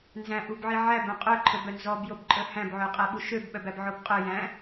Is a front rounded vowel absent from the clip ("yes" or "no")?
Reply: no